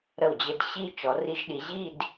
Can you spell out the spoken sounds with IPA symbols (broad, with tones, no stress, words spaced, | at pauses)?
ɾə˧˩wd͡ʑɘ˧d ɕi˧ t͡ʃɔ˩˧ri˧ʒɗi˩˧ʑi˥˧d